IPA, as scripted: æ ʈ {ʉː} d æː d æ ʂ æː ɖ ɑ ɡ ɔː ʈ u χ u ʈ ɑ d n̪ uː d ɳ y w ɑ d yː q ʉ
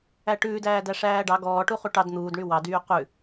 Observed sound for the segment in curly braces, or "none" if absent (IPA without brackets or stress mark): ʉː